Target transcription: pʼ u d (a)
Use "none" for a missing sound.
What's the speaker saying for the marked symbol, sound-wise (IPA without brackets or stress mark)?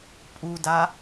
a